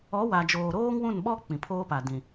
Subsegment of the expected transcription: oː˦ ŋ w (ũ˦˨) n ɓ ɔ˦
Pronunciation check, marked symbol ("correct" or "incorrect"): correct